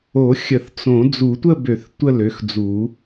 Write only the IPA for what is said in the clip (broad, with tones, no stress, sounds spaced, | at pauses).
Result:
o˨˩˦ xʲ ə˨˩˦ θ t͡s õ˨˩˦ d͡z u˨˩˦ tʷ ə˥˧ b ø˨˩˦ θ tʷ ə˥˧ l ø˩˥ x d͡z u˨˩˦